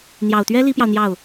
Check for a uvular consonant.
absent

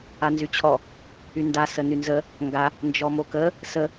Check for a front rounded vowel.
present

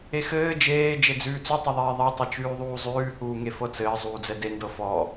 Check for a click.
absent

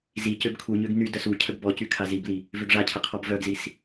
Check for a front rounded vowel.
present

